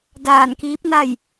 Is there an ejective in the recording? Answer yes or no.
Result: no